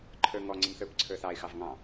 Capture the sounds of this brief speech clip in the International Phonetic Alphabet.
ǃʰ ə˞ ŋ ɔ ŋ͡ǀ ə̃ m θ ə˞ p ǀʰ ə˞ θ ɑ ɪ̯ x ɑ v ŋ ɑ̃

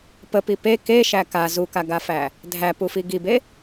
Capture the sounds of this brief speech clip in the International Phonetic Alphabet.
p ə p i p e k e ʃ æ k a z u k a ɡ a f æ | dʱ æ p u f i ɡ i b e

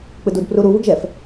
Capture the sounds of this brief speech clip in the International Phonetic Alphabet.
k͡p ɯ d u d p r u ɾ u β ɯ ɡ ʒ ɛ f

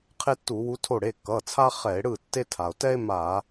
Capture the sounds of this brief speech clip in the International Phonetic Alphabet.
qʰ e˥ tː u˧˩˧ w u˧˥ tʰ o˥˩ ɽ e˩˧˩ kː ʌ˩˧˩ t͡sʰ a˥ χ ɛ˧˩˧ e̯ ɽ ɯ˥˩ tː e˥ tʰ a˩ o̯ t ɛ˥ e̯ m a˧˩˧

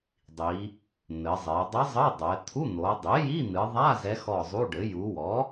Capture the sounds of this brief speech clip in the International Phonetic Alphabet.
dˤ i˩˧ | n̪ ɘ˩˧ zˤ e˩˧ dˤ ɘ˧˥ zˤ ɘ˧˥˧ dˤ ɛ˩˧ t̪ʰ u˧˥˧ n̪ o˩˧ dˤ i˩˥ j i˧˥˧ n̪ ɨ˩˧ ðˤ a˧˥˧ z ɛ˧˥ x ɔ˦˨ zˤ u˧˥˧ ɖ ɘ˩˥ j u˩˧ w ɔ˩˥

